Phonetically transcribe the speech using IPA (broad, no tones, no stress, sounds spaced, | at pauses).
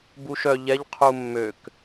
b u ʃ œ ʎ ɛ ʎ qʰ u mː ø k